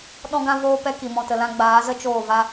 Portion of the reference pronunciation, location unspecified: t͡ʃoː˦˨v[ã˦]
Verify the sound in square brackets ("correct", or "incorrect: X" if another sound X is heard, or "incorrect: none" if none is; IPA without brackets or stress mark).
incorrect: a˦